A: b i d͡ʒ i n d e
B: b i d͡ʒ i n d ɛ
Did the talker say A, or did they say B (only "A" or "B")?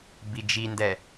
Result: B